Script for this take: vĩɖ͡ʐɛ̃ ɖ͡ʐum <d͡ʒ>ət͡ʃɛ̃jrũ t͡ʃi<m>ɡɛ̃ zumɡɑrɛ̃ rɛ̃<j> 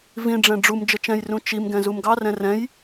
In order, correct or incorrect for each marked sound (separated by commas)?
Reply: correct, correct, correct